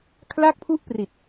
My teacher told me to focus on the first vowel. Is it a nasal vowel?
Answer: no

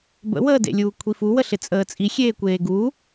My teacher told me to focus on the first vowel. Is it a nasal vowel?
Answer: no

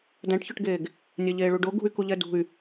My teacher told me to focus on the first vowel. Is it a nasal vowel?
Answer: yes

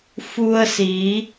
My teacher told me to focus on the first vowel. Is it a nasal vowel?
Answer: no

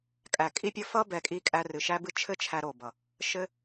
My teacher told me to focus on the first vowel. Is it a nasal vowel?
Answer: no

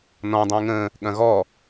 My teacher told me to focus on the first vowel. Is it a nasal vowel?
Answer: yes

